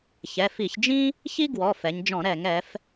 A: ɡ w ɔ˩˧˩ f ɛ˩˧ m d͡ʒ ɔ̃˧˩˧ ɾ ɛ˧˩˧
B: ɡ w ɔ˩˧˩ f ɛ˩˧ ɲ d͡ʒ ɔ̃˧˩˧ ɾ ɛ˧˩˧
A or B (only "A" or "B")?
B